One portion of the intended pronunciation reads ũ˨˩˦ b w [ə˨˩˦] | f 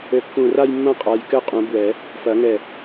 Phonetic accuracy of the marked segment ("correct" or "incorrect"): incorrect